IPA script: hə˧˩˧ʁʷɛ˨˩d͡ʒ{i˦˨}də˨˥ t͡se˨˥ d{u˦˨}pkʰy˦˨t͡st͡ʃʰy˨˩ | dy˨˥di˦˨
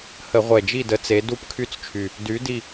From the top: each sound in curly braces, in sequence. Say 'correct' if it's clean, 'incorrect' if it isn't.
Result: correct, correct

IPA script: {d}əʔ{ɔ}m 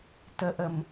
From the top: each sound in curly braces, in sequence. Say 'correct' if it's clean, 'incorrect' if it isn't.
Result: incorrect: t, incorrect: ə

